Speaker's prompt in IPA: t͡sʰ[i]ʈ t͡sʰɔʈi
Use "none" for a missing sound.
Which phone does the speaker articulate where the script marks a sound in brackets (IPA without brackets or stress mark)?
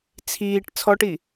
iː